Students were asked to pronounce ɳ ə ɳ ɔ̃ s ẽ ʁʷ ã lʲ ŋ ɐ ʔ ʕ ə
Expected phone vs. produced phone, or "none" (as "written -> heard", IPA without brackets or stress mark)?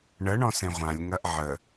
none